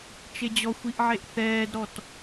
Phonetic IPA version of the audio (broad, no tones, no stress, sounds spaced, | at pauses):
t͡ʃ e d͡ʑ ɔ xʷ i ʔ ʕ e ʔ θ ɛː d ɾ ɔ t